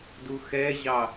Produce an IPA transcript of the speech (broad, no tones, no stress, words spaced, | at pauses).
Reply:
duxɛʑɑ